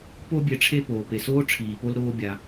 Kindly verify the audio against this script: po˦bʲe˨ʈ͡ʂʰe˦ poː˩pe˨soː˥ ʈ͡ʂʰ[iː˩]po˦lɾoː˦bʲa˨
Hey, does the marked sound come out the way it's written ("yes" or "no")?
yes